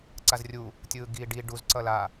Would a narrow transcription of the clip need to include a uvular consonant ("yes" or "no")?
no